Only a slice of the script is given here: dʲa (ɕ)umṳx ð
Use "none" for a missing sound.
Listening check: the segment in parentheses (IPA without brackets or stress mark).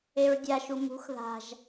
ʃ